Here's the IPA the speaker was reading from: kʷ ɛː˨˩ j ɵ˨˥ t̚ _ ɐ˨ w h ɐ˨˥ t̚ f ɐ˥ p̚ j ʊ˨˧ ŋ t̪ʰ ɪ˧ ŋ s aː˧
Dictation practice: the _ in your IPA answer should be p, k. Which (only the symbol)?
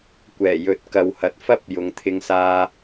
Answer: k